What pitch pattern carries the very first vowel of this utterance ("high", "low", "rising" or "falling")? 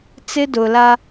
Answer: high